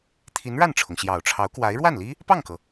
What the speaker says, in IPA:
t̪ʰ i˧˥ n ɻ a˥˩ n ʈ͡ʂʰ ʊ˩ ŋ ɕ j ɑ˨˩ ʊ̯ ʈ͡ʂʰ ɑ˧˥ ʊ̯ k w a˧˥ ɪ̯ ɻ w a˥˩ n l i˥ | p ɑ˥˩ ŋ k ɤ˩

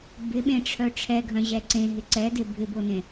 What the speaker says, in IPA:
b ɪ ɓ ẽ ʈ͡ʂʰ œ ʈ͡ʂʰ ɛ ɡʱ œ̃ ʑ ɛ ǀ ẽ ɦ ɪ ǀ ɛ d e bʱ ɪ b o n ẽ

